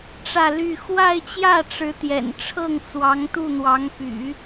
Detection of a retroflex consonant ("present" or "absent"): present